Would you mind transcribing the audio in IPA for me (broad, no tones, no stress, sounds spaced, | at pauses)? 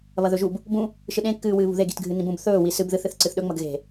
β ɐ ð ɵ ʒ u b | b ũ | ʃ ɨ ɗ ẽ kː ɨː w ɨː β ṳ ð e ɡ i̤ t ɡʱ ɨ n ĩ b ũ b θ ɵː w i s ɨ b ð ɨ θ ɨ θ ǀ ɨ θ ɗ ɵ ŋ͡m ɐ ɡ ɣ e̤